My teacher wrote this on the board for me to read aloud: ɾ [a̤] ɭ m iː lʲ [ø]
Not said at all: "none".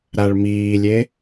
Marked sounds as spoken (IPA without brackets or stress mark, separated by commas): a, e